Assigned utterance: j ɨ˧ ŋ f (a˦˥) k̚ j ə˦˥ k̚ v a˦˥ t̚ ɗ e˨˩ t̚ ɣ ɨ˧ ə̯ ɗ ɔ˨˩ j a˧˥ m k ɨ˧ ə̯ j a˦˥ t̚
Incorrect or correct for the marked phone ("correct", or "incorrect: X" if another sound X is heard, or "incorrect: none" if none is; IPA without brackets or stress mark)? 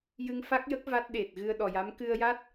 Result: correct